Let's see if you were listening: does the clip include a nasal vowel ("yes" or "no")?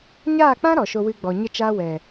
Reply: yes